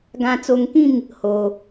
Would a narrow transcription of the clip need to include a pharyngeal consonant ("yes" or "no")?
no